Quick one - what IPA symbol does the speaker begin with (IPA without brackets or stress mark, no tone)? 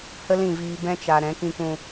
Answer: h